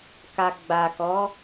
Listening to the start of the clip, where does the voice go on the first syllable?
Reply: low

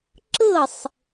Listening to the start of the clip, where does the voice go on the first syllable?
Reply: falling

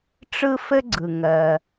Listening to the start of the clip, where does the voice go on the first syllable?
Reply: high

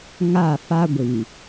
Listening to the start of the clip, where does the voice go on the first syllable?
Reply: falling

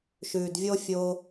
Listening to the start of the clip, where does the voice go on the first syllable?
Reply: low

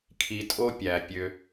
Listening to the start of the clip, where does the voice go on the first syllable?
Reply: low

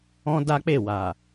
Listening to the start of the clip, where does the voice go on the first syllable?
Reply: high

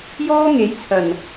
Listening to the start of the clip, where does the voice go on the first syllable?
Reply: high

